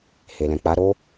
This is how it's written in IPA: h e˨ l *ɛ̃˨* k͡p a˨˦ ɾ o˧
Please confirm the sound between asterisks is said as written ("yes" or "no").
yes